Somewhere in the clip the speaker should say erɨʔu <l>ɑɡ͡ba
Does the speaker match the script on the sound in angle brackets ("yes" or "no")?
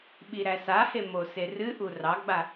no